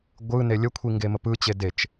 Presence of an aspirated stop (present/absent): present